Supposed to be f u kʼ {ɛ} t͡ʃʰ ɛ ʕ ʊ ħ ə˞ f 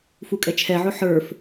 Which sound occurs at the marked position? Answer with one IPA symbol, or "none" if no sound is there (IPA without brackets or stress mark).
ɛ